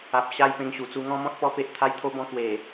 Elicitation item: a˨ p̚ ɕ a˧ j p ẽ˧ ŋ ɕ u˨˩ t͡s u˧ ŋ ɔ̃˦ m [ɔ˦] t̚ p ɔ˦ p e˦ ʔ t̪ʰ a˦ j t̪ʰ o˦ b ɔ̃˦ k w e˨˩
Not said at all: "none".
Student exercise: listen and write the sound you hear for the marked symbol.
ɔ̃˦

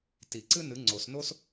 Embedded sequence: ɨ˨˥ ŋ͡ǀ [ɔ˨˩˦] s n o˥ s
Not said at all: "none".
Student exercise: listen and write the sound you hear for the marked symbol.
o˨˩˦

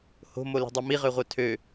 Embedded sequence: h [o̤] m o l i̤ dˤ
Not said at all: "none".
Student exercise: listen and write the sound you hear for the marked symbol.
o̤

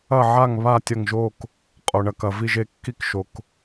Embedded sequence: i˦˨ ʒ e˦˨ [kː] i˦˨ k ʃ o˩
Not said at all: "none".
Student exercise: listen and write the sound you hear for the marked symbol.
kː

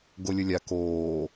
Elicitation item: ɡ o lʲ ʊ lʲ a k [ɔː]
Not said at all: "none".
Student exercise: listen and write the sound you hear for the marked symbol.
oː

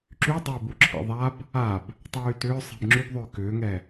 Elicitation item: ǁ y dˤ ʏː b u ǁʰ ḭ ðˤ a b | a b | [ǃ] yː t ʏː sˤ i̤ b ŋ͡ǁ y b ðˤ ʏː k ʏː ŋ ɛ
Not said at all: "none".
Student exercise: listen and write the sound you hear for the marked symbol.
tˤ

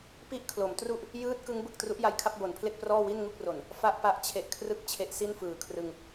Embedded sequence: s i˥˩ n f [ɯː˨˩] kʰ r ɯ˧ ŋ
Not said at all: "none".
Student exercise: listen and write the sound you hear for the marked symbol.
ɯː˨˩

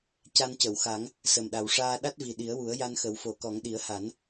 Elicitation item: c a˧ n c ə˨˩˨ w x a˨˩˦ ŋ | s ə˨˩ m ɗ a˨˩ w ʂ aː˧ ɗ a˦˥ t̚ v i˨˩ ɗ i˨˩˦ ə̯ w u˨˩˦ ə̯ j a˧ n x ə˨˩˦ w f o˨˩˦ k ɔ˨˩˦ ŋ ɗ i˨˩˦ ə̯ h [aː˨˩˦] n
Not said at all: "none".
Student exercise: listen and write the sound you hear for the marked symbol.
a˨˩˦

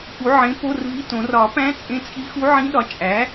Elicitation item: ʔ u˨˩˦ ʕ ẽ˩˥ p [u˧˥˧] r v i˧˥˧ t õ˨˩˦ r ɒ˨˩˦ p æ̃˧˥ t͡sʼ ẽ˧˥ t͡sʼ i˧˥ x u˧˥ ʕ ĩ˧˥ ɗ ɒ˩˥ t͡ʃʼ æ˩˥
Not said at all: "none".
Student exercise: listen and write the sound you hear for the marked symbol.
o˧˥˧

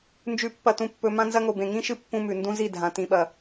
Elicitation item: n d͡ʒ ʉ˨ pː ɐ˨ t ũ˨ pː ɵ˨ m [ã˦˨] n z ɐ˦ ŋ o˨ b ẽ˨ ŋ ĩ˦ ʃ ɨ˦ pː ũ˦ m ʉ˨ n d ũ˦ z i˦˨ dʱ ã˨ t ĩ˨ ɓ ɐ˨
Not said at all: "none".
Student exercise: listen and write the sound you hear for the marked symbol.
ã˦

